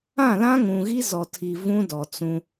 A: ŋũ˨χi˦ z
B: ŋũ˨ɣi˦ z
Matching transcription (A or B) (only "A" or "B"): B